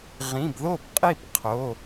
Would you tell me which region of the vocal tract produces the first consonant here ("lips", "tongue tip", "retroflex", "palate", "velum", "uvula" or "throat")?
uvula